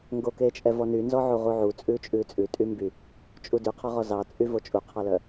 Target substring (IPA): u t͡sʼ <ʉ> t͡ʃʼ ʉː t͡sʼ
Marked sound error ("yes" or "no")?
yes